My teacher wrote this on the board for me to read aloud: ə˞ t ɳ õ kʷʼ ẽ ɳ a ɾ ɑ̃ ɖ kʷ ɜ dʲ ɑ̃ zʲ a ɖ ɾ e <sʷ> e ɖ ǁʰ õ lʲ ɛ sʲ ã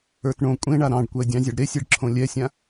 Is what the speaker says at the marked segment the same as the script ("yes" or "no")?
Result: no